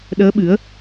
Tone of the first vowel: rising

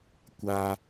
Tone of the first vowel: high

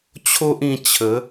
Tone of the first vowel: high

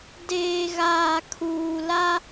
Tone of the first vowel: low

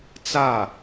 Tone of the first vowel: falling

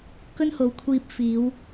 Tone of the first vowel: high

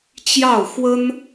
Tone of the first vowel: falling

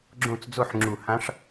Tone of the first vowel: falling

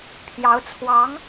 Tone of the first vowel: rising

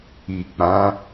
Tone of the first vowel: low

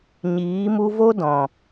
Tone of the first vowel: rising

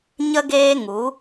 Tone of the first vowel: high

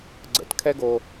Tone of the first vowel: low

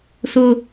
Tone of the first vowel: high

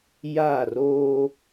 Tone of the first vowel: falling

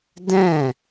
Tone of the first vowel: falling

